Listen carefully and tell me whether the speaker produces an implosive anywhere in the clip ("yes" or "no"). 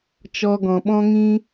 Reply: yes